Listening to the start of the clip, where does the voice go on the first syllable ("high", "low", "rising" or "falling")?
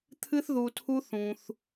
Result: high